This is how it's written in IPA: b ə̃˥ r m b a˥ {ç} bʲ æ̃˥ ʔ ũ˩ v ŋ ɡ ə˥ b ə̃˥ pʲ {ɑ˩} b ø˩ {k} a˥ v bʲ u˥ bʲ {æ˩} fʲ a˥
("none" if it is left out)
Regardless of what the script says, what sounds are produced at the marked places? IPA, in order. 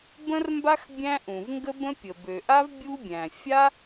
x, ə˩, ʔ, æ̃˩

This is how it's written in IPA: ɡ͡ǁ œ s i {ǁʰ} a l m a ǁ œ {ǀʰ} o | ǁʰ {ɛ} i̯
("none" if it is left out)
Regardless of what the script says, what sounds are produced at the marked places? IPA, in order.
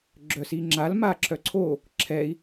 ŋ͡ǁ, ǀʰ, ɛ

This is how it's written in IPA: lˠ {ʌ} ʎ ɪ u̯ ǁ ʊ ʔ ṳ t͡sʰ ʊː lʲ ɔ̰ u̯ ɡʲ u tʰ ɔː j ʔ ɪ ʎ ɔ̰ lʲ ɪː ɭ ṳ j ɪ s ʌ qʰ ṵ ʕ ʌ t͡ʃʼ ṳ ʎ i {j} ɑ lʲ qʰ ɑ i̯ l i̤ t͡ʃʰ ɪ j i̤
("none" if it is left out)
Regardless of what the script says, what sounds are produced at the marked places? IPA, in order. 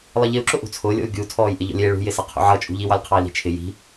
ʌ, w

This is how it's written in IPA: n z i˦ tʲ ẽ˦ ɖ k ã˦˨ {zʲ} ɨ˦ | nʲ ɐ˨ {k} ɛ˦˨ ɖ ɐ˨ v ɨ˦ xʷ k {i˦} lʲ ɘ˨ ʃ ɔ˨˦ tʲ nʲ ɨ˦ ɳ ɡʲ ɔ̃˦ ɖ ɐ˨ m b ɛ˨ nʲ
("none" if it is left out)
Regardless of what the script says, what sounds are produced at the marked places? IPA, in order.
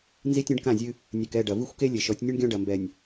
zʲ, k, e˦

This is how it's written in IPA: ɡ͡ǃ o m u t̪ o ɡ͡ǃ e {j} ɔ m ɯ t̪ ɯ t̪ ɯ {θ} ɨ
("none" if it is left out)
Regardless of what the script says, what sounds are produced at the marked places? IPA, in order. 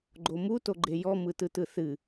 j, θ

